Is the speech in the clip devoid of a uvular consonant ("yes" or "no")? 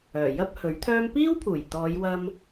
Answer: yes